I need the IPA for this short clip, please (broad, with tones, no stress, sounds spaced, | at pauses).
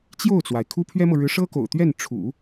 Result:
t͡ɕ j o˥˩ ʊ̯ t͡s w a˩ ɪ̯ kʰ u˥ pʰ ɥ ɛ˥ m ɤ˨ ɻ ɻ̩˧˥ ʂ ɤ˥ k o̰˨˩ ʊ̯ t̪ ɥ ɛ˥˩ n ʈ͡ʂʰ ṵ˨˩˦